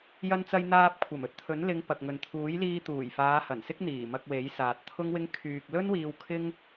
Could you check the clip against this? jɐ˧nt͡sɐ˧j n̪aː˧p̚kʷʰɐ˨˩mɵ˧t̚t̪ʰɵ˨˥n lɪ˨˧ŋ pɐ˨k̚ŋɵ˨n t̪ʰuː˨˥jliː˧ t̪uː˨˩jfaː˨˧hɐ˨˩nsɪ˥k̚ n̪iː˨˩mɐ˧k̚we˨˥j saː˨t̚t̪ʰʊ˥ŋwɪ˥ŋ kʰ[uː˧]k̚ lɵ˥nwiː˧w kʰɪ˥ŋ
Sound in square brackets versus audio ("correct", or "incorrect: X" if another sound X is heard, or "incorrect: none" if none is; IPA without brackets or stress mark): incorrect: yː˧